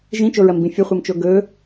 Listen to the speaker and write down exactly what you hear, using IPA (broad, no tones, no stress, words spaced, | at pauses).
ʒĩt͡ʃoɹɐmbĩ fʲəχʷɤmt͡ʃo ɡɵ